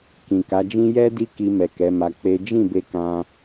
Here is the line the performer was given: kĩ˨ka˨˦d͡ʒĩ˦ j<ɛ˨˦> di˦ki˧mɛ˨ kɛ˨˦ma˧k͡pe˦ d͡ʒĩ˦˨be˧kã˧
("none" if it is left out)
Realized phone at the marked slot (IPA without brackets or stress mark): ɛ˦